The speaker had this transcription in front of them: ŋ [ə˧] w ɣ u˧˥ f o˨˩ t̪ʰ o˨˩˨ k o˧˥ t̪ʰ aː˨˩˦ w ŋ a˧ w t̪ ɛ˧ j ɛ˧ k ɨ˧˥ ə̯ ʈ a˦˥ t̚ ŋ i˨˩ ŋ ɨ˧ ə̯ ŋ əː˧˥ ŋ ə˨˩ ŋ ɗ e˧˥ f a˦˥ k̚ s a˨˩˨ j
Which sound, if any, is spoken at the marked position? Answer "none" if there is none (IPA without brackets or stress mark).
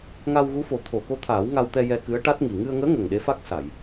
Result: a˧